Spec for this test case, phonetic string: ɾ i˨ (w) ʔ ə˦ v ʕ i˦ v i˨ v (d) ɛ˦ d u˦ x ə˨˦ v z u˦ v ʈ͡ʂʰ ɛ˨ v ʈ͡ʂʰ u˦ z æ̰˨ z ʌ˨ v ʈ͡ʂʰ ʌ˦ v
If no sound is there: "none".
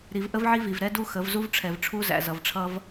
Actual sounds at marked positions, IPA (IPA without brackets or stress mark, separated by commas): v, ɾ